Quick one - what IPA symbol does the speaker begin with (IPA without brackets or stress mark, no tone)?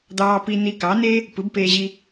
d̪